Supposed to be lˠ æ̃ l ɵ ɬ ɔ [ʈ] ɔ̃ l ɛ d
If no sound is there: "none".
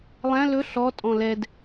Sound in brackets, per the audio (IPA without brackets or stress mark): tʼ